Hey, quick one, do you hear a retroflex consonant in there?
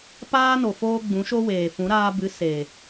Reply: no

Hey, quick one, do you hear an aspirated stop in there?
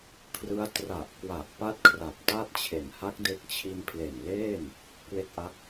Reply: yes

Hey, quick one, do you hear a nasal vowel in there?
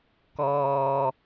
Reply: no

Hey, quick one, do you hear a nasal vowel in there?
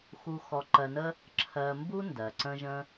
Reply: yes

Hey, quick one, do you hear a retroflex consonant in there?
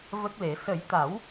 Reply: no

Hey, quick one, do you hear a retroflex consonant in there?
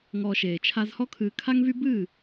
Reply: no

